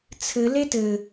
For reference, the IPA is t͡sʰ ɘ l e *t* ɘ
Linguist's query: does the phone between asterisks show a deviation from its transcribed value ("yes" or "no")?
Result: no